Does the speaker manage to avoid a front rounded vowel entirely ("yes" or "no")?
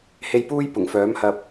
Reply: no